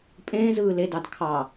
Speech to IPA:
pʼ ẽː z ɯː l e d ɑ d kʰ ɑ

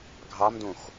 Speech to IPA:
ɡʱ ɑ m d õ x

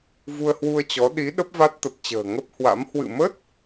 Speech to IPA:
v u˧ ə̯ h w u˧ ə̯ t͡ɕ ɔ˨˦ ɗ i˨˦ ɗ ə˦˥ p̚ v a˦˥ t̚ t̪ ə˨˩ p̚ t͡ɕ ə̤ː˨˩ ŋ ə˦˥ p̚ h w a̰˧˥ m h w ɨ̰˧˨ m ə˦˥ t̚

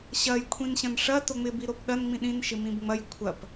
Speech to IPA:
ɕ ɐ j kʷʰ ĩ n ɕ ɐ̃ n ʂ ɐ t o ŋ͡m ɪ b i ɾ o p ɗ ɐ n ŋ͡m ĩ ɗ ĩ n ʃ ɪ m ĩ b ŋ͡m ɐ j kʷʰ ɐ p

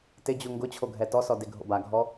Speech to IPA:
t ɪ d͡ʑ u ŋ ɡ ʊ t͡ɕʰ o ɡʱ ɛ t ɔ s ɔ d e ɡʱ o̰ b a ɡʱ ɔ

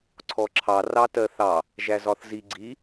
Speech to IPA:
ǀʰ ɔ ǁʰ ɑ r ɑ t ɜ θ ɑ | ʒ æ z ɒ θ z i ɡ͡ǀ i

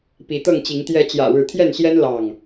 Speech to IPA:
p i˨˦ t̪ ɤ˥˨ ŋ t͡ɕ i˨˦ ŋ t̪ j ɛ˨˦ t͡ɕ j ä̰˨˩ ɻ ɻ̩˨˦ t̪ʰ j ɛ˥˨ n ɕ j ɛ˦ n l ɑ˥˨ ŋ

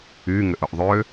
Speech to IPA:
y ŋ ʏ ʔ ʊ ʔ ðˤ ø

